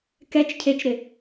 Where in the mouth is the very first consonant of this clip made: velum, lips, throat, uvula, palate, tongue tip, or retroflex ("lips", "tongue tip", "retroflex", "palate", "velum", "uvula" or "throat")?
velum